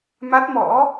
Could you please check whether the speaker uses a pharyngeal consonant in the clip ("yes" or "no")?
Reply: no